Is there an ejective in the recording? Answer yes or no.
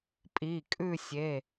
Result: yes